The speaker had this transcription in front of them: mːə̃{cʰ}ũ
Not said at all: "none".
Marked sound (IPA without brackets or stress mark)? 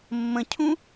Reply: cʰ